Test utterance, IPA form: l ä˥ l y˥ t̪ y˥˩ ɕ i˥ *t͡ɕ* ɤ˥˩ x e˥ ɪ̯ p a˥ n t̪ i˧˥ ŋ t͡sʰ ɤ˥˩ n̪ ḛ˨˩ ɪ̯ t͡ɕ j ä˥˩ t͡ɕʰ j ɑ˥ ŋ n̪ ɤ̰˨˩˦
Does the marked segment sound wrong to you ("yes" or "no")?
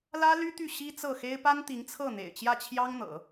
yes